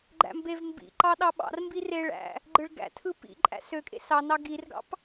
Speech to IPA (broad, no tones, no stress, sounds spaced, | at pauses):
ɡ͡ǃ æ̰ m b e v m b ḭ ǃ ɑ ɗ ɑ ɓ ɑ̰ r m b i r e ɭ æ̰ | ɡ͡ǃ ɯ ɭ ɡ æ̰ tʰ ɯ p ḭ ǃʼ æ̰ s ø kʼ ḛ s ɑ n ɑ ɡ i r ɡ ɑ̰ p